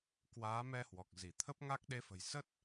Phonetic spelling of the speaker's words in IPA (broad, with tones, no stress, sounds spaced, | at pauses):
k w aː˨˦ m ɛ˧ h w ɔ˨˩ k̚ z i˧˩ t̪ʰ ə˦˥ p̚ ŋ a˦˥ k̚ ɗ e˨˦ f ə̤˨˩ j s ə˦˥ t̚